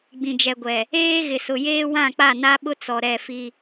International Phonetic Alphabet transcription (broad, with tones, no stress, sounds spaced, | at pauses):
ɡ͡b ĩ˨ d͡ʒ ɛ˨ ɡʷ ɛ˨ | eː˦ ɣ ɪ˨ s ʊ˨ j eː˦ w ã˦˨ k͡p a˦˨ n a˦ ɓ ʊ˦ t͡s ɔ˨ ɾ ɛ˦˨ f i˦